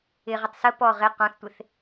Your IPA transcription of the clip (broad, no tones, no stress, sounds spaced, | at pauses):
ɪ ʁ ə tˤ s ə p ɔ ʁ ɪ q ɔ̃ θ tʷ ɪ θ